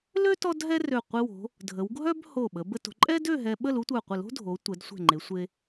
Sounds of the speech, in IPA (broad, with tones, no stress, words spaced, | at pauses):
lø˥ tɔ˥dɦɛ˥rø˧˩ qʷi˧wo̤˩˧ | dʱə˩˧w ɡʱœ˥bho˧˩ɓə˩˧ bə˧to̤˩˧ǃʼɛ˥dø˥˧ ɦɛ˧ ɓə˥˧lu˥tʷœ˧˩ qʷə˧˩lo̤˥dʱo˩˧ tʷɛ˩˧dsʷɛ̤˧˩ŋ͡ǃe˩˧ sʷe˧